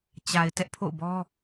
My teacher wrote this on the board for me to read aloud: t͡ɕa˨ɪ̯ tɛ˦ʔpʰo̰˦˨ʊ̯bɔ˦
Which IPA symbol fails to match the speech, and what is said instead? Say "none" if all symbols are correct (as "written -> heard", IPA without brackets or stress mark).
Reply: none